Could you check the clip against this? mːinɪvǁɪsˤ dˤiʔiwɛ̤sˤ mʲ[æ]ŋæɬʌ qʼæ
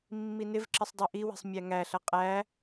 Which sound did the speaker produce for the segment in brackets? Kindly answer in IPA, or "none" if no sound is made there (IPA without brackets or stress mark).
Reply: æ